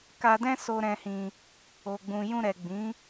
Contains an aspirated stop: no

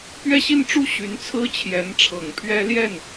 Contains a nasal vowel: no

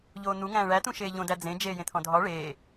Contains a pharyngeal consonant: no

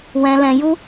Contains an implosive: no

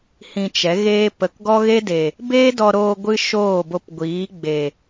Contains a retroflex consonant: no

